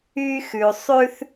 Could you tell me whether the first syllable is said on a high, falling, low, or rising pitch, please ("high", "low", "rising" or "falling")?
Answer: high